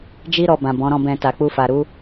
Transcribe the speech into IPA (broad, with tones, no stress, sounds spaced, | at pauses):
d͡ʒ i˦ ɾ ɔ˧ b ã˨ b ɔ̃˨˦ ɾ ɔ̃˦˨ b ɛ̃˧ t a˨ k͡p u˧ f a˨ ɾ u˨˦